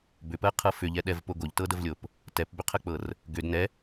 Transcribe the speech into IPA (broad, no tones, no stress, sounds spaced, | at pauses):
b ʏ p ɜ qʰ ɤ f ʏ ʎ ɛ ɗ ɛ v p o ɡ o ʎ t ɤ d ə v lʲ o p | t ɛ p b ʏ qʰ ə k͡p ɤ r | ɡ ʏ d n ɛ